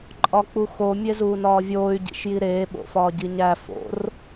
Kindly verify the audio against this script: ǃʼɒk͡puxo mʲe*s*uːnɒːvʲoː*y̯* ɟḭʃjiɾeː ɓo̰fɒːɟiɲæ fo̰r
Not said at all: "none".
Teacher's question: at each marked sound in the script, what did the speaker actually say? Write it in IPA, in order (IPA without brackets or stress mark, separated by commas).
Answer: z, y̯